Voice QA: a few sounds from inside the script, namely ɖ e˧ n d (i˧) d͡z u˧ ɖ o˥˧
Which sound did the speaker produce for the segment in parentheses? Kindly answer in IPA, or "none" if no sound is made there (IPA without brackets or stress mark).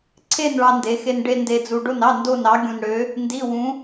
e˧